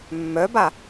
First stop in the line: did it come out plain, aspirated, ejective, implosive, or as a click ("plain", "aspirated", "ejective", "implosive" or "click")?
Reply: plain